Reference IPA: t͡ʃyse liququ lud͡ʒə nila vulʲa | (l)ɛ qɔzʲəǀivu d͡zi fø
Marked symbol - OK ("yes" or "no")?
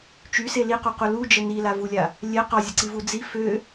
no